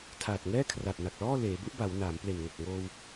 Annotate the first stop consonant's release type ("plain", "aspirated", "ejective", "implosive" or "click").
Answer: aspirated